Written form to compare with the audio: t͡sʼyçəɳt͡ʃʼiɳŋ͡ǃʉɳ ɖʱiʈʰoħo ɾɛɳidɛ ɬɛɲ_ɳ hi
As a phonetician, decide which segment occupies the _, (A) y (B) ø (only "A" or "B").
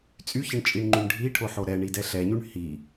A